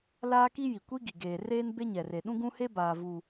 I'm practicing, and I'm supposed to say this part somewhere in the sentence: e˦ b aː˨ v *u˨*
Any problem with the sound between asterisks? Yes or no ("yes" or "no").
no